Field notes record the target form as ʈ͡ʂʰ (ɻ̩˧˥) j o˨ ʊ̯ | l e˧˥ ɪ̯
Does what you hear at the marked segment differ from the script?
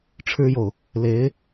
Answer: yes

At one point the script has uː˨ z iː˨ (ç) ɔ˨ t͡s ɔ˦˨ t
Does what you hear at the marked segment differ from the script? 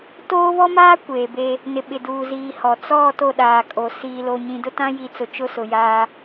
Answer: yes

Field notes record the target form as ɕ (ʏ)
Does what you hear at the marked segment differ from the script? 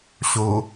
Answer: yes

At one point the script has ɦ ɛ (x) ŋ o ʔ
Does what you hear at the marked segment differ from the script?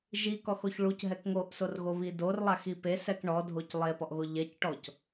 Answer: yes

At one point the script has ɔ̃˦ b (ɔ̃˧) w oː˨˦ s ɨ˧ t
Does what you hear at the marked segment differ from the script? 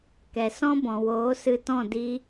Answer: yes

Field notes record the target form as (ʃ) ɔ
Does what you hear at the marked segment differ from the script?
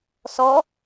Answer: yes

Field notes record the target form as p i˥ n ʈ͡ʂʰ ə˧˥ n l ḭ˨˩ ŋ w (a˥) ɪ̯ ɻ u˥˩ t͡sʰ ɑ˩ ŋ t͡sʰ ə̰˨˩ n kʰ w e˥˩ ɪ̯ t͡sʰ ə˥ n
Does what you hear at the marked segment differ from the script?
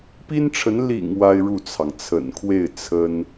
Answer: no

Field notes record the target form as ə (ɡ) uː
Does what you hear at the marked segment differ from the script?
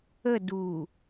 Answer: yes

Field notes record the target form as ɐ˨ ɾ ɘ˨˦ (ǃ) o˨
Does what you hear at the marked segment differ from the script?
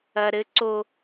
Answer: yes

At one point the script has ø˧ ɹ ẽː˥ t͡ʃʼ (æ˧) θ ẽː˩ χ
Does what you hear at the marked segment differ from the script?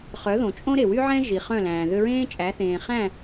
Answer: yes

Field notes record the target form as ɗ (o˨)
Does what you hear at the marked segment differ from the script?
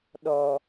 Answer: yes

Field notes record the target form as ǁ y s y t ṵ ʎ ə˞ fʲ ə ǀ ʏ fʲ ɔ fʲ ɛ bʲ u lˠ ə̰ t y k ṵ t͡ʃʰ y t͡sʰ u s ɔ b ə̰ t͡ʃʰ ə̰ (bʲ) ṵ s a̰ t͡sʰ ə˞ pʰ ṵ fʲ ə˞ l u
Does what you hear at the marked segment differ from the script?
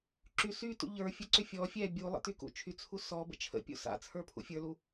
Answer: yes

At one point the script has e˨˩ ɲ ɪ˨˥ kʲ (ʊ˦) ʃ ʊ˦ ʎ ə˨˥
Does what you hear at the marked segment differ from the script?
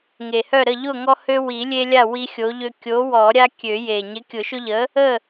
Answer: yes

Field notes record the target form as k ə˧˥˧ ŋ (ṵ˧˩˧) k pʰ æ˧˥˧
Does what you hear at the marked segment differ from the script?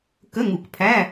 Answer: yes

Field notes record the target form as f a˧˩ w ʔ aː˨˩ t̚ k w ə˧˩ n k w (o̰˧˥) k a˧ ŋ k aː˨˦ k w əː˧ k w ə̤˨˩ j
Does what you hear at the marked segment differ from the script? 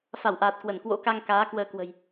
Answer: no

